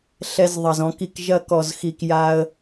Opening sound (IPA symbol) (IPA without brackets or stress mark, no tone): ɬ